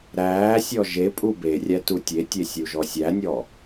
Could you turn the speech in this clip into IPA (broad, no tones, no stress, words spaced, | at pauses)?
ɾæːsʲɔ ʒe pʼuberʲæ tutʲetʲe sʲuʒɔsʲænʲɔ